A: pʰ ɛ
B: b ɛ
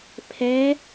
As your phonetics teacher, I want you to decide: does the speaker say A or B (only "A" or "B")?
A